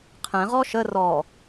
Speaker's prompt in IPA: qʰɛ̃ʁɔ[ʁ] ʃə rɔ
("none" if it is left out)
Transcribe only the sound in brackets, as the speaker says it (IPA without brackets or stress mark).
none